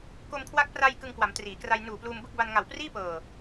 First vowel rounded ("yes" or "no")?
yes